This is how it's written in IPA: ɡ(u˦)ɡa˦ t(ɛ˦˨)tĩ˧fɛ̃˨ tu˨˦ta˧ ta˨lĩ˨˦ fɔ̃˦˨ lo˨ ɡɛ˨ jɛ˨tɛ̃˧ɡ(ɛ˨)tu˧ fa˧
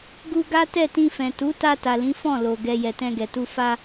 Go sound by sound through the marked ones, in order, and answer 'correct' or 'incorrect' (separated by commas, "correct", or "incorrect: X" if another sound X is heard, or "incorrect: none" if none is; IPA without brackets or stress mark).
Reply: incorrect: u˧, correct, correct